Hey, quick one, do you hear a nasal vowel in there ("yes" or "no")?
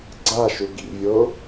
no